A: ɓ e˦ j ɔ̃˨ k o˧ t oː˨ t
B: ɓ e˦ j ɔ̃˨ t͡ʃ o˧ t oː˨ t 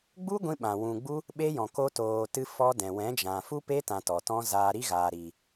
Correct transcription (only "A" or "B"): A